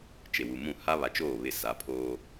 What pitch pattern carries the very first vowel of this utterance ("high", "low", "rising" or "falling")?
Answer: low